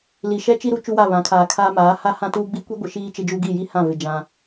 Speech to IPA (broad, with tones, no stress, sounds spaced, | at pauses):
l i˨ ʃ ɛ˦ t͡ʃ i˦ ɾ u˦ t͡ʃ u˦ w a˦˨ β ã˨˦ kʰ aː˨ kʰ aː˦ m aː˨˦ h a˦ h ã˦ t uː˦ ɡ͡b i˦ kʷ i˦ ɡʷ ɪ˨ ʃ iː˦ t͡ʃ ɪ˦ d͡ʒ u˦ ɡ i˦˨ j i˦ h ã˦˨ v ɪ˨ d͡ʒ ã˦